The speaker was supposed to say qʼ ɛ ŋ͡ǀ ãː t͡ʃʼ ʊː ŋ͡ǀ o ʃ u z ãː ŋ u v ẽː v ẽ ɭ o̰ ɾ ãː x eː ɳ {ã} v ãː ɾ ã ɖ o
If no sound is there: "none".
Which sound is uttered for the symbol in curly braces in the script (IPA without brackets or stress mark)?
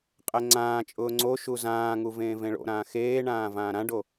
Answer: ãː